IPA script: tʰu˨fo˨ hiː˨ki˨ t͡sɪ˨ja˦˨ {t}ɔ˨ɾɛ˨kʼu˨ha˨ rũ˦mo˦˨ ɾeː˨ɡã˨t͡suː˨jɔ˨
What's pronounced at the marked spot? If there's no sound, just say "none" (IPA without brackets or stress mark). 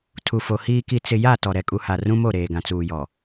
t